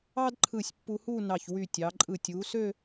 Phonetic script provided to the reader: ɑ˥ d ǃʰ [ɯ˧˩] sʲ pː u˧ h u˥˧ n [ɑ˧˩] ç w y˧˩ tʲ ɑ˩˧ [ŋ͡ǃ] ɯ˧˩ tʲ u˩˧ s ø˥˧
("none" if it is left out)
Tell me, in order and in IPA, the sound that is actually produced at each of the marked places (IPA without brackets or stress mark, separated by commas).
ɯ˧˩, ɑ˧˩, ǃʼ